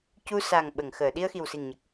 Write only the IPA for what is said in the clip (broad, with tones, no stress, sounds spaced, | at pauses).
c u˧ s a˨˩ ŋ ɓ ə˨˩˨ ŋ x əː˨˩˨ ɗ i˧ ə̯ x i˨˩ w s i˨˩ ŋ ɲ ə˨˩ k̚